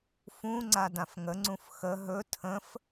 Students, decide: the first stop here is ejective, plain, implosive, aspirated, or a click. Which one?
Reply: click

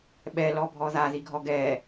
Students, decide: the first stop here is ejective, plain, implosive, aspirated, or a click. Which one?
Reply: implosive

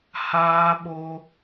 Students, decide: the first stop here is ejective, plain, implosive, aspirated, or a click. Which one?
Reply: implosive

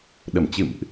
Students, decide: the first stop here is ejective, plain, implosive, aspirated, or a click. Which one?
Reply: implosive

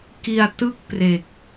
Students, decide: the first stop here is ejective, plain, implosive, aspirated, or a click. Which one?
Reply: plain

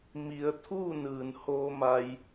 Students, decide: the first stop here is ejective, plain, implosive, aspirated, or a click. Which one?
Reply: aspirated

